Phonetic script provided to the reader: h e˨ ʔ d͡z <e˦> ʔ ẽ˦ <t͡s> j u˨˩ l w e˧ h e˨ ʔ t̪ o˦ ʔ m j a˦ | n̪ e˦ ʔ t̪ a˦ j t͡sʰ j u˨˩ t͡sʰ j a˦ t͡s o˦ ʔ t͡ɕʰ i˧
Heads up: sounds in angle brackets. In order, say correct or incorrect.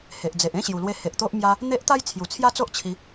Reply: incorrect: e˨, incorrect: ɕ

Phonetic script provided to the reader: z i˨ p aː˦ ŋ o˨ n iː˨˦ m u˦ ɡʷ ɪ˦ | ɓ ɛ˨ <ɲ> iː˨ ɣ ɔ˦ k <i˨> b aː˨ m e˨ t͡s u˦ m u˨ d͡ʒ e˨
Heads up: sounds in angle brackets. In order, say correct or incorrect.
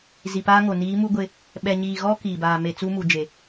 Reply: correct, incorrect: iː˨

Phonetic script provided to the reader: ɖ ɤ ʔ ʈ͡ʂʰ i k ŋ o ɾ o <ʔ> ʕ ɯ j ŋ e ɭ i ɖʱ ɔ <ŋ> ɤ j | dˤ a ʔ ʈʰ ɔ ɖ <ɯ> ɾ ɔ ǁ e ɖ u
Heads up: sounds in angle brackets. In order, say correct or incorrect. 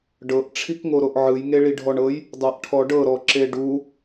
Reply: correct, incorrect: ɳ, incorrect: ɤ

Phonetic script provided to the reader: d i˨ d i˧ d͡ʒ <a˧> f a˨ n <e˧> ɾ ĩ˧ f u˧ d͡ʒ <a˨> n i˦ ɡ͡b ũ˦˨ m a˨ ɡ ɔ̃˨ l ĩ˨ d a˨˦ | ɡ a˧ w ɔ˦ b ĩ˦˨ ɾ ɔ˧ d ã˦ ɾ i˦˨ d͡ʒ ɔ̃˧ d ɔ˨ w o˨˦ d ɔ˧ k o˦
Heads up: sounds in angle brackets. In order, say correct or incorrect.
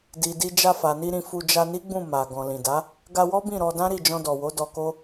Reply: correct, incorrect: i˧, incorrect: a˧

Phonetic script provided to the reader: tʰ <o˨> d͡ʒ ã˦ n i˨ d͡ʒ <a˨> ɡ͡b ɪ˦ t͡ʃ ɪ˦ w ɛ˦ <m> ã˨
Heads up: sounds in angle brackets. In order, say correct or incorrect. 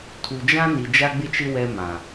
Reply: incorrect: u˨, incorrect: a˦, correct

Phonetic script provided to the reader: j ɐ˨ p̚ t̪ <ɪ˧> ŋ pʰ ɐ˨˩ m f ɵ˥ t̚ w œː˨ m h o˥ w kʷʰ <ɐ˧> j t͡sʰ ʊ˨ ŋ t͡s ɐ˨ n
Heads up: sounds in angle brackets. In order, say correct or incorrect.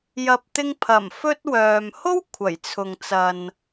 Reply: correct, incorrect: ɐ˨˩

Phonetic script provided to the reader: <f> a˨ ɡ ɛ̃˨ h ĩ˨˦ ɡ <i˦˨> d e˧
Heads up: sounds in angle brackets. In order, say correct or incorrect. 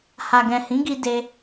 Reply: incorrect: h, incorrect: i˧

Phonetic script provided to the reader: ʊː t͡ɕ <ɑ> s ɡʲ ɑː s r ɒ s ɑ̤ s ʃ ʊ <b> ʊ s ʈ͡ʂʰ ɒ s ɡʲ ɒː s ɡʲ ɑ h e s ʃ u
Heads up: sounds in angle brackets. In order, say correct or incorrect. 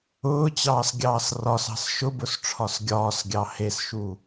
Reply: incorrect: ɑː, correct

